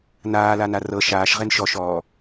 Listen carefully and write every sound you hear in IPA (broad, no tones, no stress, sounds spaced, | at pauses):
n aː l a n a r ɤ ʃ aː ʃ ʁ e n ʃ ɔ ʃ ɔː